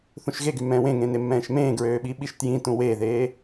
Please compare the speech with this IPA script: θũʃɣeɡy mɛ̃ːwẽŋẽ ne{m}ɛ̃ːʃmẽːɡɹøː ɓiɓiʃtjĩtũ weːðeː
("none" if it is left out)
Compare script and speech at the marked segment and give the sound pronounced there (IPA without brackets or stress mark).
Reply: mː